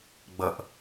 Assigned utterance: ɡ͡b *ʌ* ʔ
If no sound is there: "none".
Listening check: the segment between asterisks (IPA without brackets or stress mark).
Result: ʌ